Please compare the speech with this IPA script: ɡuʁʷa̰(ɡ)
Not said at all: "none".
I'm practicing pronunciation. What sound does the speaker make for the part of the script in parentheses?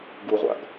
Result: ɡ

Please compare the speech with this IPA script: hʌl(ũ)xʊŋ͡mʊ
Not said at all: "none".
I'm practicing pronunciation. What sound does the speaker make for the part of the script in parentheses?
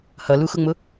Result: u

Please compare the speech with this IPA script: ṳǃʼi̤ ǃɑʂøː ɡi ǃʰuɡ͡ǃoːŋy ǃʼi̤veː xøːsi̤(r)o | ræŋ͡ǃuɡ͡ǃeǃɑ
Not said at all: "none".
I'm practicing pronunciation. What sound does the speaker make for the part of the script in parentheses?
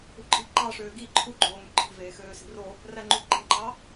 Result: r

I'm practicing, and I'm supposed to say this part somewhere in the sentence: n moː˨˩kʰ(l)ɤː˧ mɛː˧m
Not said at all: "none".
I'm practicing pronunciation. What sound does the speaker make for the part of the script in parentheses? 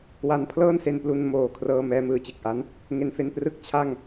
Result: r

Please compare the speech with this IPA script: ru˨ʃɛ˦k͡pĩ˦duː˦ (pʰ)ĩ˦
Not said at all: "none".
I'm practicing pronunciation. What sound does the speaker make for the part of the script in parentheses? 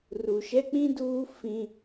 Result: f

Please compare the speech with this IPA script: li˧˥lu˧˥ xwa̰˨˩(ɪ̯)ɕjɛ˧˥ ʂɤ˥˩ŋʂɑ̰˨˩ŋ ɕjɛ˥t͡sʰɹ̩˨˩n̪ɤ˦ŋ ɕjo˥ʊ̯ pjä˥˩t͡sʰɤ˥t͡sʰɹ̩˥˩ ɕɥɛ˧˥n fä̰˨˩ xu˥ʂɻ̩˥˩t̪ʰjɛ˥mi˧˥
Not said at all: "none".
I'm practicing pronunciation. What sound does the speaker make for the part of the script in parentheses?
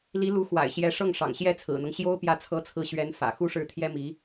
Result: ɪ̯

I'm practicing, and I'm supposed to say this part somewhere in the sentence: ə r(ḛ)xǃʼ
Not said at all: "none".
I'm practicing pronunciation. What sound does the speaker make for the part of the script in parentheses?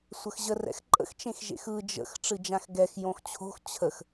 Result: ɛ̰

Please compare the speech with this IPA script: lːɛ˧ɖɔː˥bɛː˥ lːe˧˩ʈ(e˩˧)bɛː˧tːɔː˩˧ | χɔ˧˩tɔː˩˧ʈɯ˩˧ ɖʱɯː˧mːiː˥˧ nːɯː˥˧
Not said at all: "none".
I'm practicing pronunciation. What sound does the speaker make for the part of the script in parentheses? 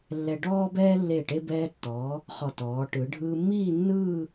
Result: e˧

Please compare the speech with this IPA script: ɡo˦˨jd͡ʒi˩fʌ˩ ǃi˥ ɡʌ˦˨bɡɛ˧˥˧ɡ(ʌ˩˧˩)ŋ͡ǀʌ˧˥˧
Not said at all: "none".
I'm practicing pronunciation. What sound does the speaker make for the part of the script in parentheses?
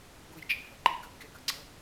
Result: ʌ˩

